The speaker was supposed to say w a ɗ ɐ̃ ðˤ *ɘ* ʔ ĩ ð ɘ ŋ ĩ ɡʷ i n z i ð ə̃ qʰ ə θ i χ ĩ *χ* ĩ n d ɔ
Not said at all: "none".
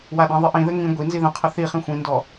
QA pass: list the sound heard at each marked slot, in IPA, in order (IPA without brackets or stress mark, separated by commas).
ɘ, xʷ